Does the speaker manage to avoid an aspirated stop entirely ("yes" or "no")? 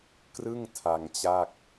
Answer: no